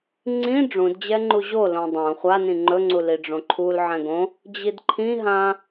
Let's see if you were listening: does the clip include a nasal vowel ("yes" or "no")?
yes